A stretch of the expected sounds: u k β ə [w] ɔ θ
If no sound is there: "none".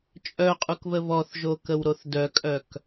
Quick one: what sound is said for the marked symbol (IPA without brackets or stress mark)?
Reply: β